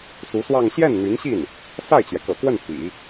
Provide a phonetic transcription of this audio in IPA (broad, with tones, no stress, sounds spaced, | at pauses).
s u˧˥ s w ɑ˥˧ ŋ ɕ j ɛ˥˩ n n̪ y˧˥ n ɕ i˥˩ n | s a˥˩ ɪ̯ t͡ɕ ɥ ɛ˩ k ɤ̰˨˩ k w ə˥˩ n p ḭ˨˩˦